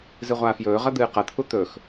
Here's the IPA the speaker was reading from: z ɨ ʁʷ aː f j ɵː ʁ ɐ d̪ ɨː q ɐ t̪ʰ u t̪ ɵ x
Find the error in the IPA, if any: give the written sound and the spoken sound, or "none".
none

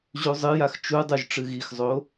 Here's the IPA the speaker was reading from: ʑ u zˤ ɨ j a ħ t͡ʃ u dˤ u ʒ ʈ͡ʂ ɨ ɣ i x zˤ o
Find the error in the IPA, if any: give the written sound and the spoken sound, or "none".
ħ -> x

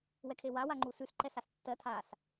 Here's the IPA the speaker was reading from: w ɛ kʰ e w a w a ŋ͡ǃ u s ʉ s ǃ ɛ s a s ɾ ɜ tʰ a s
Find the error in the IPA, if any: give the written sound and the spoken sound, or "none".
ɾ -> tː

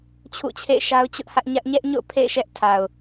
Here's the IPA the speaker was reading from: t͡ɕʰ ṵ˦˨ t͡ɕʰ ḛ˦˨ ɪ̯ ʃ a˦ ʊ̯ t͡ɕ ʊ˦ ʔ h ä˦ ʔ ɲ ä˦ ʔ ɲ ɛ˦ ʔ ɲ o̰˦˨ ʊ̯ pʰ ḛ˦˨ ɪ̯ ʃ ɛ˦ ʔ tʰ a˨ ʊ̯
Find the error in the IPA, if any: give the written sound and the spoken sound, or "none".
none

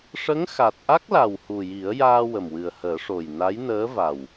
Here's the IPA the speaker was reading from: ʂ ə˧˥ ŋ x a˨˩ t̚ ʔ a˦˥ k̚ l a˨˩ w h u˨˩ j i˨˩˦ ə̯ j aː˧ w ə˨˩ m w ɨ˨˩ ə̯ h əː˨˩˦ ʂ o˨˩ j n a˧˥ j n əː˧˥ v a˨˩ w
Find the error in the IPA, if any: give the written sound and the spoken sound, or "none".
none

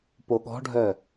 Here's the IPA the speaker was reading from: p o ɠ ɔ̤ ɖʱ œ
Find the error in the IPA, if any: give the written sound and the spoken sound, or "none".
none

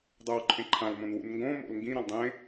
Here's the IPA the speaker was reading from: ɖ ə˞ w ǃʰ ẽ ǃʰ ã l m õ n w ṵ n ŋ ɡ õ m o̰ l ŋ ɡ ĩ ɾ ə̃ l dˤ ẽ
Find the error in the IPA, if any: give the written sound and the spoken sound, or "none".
ɖ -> dˤ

